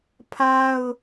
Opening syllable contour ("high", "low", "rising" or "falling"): high